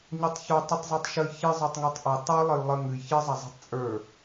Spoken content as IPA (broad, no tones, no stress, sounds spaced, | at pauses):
ɲ o tˤ ç o tˤ ə tˤ zˤ u tˤ ʃ ə j ç ɨ zˤ ə˞ tˤ ŋ ə˞ tˤ ʔ o tˤ ə˞ lˠ ə j lˠ ə ŋ ɨ j ç ɨ zˤ ɐ zˤ ə̤ tˤ t͡sʼ ə˞